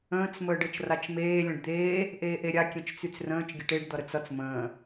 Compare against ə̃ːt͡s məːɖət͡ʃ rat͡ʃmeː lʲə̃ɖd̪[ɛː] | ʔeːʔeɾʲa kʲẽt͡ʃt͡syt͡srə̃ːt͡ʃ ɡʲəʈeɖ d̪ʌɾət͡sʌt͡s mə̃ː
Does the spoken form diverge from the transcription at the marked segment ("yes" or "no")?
yes